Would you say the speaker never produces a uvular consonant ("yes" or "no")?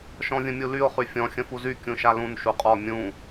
no